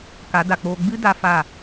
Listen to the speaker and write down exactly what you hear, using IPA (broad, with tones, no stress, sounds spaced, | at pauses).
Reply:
k a˨˦ d a˨ k͡p oː˧ ɡ͡b ɨ˦ d a˧ f a˦˨